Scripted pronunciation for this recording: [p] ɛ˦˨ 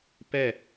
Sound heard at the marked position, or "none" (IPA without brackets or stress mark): p